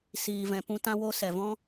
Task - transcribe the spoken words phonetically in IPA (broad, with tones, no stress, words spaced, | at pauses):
siː˨vɛ̃˨ pũ˧ tã˧wo˧ sɛ˨vɔ̃˦